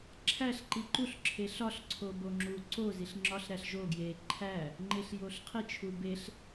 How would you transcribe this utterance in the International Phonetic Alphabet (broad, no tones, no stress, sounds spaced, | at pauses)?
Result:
ǁʰ æ ɬ ǃ i ǃ u ɬ ǁʰ e ɬ ɒ ɬ ǀʰ o b o ŋ͡ǁ u ǀ o z i ɬ ŋ͡ǁ ɒ ɬ ɾ æ ɬ ʒ o ɡ j e ǃʰ æ | ŋ͡ǃ e ɬ j o ɬ qʰ i t͡ʃʰ u b e ɬ